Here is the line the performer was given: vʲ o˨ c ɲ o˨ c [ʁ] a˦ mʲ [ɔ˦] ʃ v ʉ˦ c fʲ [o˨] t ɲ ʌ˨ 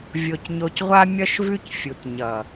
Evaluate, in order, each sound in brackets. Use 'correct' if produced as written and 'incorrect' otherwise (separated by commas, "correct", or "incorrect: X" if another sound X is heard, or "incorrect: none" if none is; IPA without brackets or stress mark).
incorrect: ʁʷ, incorrect: ʌ˦, incorrect: u˨